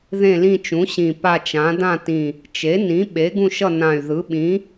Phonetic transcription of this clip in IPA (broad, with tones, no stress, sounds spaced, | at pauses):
ð ẽ˦˨ l ĩ˦˨ t͡ʃ ũ˩˥ ɕ ĩ˨˩ p a˦˨ t͡ʃ ã˩˥ d ã˦˨ t ĩ˨˩ | t͡ʃ e˩˥ n ĩ˩˥ ɓ e˩˥ ɡ ũ˦˨ ʃ ʌ˦˨ n ã˨˩ y̯ ð ɯ˩˥ ɓ ĩ˩˥